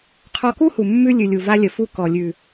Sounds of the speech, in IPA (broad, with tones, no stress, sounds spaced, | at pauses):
qʰ ɔ˧ k u˦ h u˨ mː ʉ˦ lʲ ʉ˨ lʲ u˨ v a˧ lʲ ə˨ f u˧ k ɔ˨ lʲ ʉ˨